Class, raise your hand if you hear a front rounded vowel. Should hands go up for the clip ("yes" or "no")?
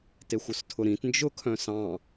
yes